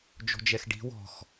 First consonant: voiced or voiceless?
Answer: voiced